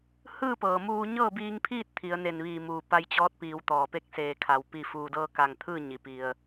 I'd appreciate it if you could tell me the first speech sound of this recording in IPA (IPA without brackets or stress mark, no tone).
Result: h